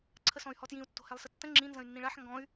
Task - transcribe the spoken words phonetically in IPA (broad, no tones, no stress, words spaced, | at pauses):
ǀʰəsɔ̃y̯hɔtjĩu̯ tːo̤hɛlˠsətːə̃ ŋ͡ǁĩ nzə̃y̯nːĩɭaħ ŋɡɔ̃y̯